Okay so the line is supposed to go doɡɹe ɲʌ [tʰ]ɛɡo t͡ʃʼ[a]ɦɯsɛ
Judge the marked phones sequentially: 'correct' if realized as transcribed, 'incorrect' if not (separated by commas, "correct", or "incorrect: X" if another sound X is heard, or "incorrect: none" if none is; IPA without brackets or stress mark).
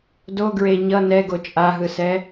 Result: incorrect: n, correct